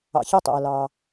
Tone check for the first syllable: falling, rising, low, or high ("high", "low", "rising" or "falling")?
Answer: low